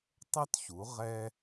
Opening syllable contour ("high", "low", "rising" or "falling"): high